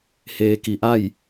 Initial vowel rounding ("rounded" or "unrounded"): unrounded